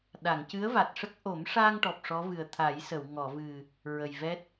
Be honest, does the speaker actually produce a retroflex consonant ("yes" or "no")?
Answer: yes